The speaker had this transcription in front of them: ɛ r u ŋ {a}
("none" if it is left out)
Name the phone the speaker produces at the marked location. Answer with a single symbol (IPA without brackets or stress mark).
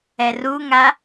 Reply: a